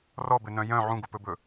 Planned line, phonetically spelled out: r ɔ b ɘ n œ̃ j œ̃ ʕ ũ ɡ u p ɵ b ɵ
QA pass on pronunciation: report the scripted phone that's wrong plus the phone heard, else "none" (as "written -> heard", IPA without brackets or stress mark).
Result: none